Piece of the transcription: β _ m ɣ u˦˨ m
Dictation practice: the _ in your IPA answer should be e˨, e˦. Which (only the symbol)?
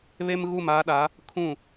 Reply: e˦